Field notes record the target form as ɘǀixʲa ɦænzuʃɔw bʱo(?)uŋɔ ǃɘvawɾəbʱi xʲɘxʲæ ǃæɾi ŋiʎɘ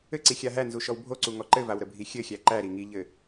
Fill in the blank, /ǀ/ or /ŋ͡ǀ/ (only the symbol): ǀ